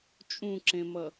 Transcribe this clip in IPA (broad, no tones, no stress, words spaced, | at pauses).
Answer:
t͡ʃʼũǁẽmʌ